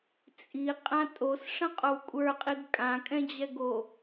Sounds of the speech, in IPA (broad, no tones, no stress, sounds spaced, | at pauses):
t͡sʼ i qʼ ã tʼ o s ʂ ə̃ qʼ o w kʷʼ ə˞ qʼ i ɡ kʼ ã kʼ ɛ̃ d͡ʑ ɛ ɡ o